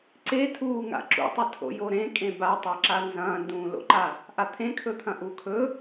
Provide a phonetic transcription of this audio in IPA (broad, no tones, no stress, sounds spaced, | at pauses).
ǀ e tʰ uː ŋ a̰ ǁ ṵ tˤ ɨ tʰ o̰ j o ɾ ẽ kʼ ẽ b a tˤ a ǁ a n z ɐ̃ː n d ũː l o̰ ǃ a | ʔ a t̪ʰ ẽ kʰ ɵ t̪ʰ ɐ̃ ʔ u kʰ ɵ